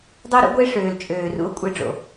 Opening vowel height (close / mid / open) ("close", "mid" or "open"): mid